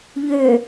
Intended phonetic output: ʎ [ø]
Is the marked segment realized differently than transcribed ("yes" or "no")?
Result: no